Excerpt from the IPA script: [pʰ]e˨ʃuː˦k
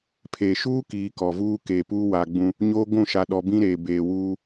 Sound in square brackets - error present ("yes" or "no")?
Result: no